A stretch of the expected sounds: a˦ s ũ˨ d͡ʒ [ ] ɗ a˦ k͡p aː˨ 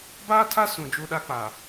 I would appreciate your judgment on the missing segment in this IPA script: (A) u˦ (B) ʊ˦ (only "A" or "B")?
A